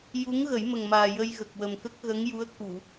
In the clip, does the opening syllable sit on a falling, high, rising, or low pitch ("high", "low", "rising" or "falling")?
rising